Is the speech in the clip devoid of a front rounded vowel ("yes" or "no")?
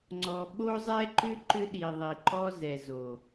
no